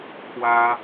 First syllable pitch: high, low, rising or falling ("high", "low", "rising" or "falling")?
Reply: high